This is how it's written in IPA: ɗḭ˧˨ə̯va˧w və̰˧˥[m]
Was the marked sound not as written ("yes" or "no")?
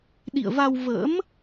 no